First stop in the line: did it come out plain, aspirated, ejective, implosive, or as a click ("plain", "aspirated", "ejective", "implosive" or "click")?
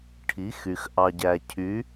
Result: aspirated